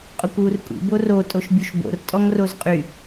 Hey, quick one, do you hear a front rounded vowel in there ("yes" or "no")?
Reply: yes